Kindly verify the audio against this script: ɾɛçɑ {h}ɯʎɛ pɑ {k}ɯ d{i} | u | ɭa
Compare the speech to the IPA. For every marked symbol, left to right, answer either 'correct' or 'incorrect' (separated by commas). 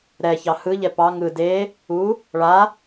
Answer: correct, incorrect, incorrect